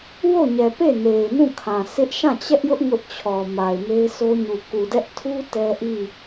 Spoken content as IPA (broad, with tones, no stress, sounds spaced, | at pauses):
w o˦˨ ɲ ɛ˨ p e˦˨ n e˨ ɪ̯ n ũ˦˨ kʰ ã˨ s ɪ˦ ʔ ʃ ã˦˨ t͡ɕ ɛ˦ ʔ j ʊ˦ ʔ ŋ ʊ˦ ʔ t͡ɕʰ ɔ˨ m a˨ ɪ̯ m e˦ ɪ̯ sʰ o˦ ɲ u˨ k u˨ d ɛ˦ ʔ tʰ u˦ t ɛ˦ ʔ i˦˨